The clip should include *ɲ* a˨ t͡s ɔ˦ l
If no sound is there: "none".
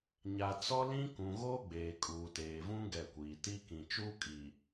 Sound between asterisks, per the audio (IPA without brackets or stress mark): ɲ